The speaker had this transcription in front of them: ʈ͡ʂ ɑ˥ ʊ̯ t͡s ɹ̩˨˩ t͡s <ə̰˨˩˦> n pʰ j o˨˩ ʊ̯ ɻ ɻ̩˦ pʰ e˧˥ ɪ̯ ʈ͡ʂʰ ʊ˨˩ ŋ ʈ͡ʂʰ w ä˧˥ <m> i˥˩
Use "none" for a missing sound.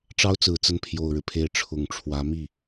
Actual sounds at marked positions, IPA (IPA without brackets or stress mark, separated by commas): ə˥˩, m